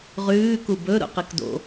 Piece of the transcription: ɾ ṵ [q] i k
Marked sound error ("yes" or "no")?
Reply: no